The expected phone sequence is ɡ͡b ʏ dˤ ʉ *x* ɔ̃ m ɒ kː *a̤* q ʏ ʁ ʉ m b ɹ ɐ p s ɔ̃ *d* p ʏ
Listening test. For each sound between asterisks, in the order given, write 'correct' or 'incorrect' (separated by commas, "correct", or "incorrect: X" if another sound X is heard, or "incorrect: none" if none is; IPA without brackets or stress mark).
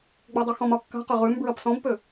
correct, correct, incorrect: b